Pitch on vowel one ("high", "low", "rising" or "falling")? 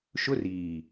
high